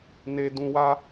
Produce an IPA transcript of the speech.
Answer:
n e˧ d ũ˧ w a˦

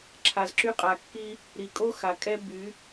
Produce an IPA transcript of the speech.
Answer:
ǁʰ a˨ z ǁ y˧ qʼ a˨ kː i˦ | ɾ i˨ kʼ o˦ x a˨ kʼ ɛ˦ b y˨˦

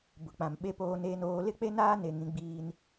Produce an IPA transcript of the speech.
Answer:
b ʊ˨ k͡p ã˨ m ɓ e˦ p oː˦ n eː˦ n oː˦ l ɪ˦ k͡p e˦ n aː˦ n e˨ ŋ ĩ˦ ɡ͡b iː˦ n

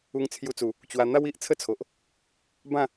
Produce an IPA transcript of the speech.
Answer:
u˧ ŋ t͡sʰ j u˧ t͡s u˨˩ | t͡ɕ w a˧ n̪ a˦ w i˨ ʔ t͡sʰ ə˦ t͡sʰ o˨ ʔ | b ã˥˧

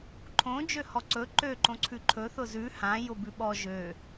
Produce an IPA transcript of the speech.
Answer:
ǃʰ õ d͡ʒ ø h ɔ ǀ ɵ ǃ ø ǃ õ ǀʰ ʉ ǃʰ ɵ θ ʊ z ʉ h ã j ʊ b ʉ ɓ ɔ ʒ ø

